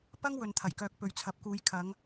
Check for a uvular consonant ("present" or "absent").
absent